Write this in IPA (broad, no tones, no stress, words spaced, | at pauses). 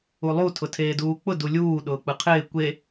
ulˠu tʰʊtʰeːduːk͡pʊ dulʲuː ɗʊːk͡pɯqʰɪː kʷe